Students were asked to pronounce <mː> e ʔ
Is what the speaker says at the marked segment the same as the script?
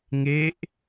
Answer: no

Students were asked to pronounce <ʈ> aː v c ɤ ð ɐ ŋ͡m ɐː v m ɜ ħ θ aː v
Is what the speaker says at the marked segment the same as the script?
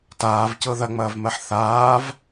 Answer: no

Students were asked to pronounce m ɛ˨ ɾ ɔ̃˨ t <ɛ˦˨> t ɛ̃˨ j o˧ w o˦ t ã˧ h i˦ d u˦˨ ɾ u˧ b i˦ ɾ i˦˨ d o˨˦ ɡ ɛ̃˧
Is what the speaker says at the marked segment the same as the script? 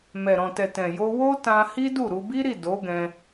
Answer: no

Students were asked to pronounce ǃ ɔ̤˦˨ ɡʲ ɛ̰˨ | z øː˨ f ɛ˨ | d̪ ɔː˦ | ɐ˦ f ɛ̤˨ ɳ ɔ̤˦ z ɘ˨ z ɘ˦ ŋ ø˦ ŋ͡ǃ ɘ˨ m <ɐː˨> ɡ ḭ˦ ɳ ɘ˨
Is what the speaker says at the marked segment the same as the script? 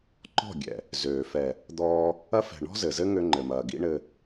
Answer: yes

